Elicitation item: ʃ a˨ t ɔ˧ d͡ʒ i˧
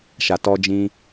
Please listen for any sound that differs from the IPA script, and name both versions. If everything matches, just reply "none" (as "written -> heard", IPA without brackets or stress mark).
i˧ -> ĩ˧